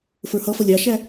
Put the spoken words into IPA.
fə˞hʌfʌ lʲɑʃæ

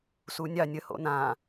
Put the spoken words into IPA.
sunʲɑ nʲəho̰ nã

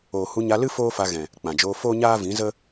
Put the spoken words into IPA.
oː˨hu˧ɲa˧lɨ˦ foː˦fa˧ɣɛ̃˨ | k͡pã˨ d͡ʒoː˧foː˦ɲaː˦ vĩ˨˦ zə˦

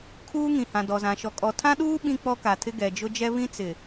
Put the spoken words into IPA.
kʰuː˦ŋĩ˨hã˨ dɔ˨zã˨ ʃɔ˨kʼɔ˨tʰã˦ɗuː˦ ɓĩ˦k͡pɔ˦ka˨tʰɪ˦ ɡɛ˨d͡ʒʊ˦d͡ʒɛ˦ βĩ˦t͡sɪ˨

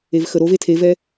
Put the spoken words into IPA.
evxəɾove tʰevɛ

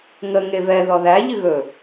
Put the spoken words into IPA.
ŋə ŋevɛ ðɔðæ ʎɨɣɵ

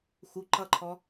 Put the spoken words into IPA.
xu ǃʌǃʰɔ

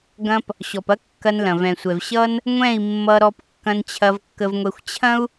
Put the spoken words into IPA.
ɡɐ̃˧p | ɕɔ˨pɐ˦ kːɐ˧n lɐ̃˨vɛ̃˨sʷɛ˨v ɕʌ˦n | ŋʷɛ̃˦˨i̯ mːʌ˧ɾɔ˧p kːɐ̃˧nt͡ɕʰɐ˧vkːə˧vŋʷɛ˧xʷ t͡ɕʰɐ̃˦u̯

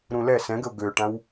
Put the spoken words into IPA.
ɾũlɛ sɛ̃ɡəʊ̯ ɡøʈãw

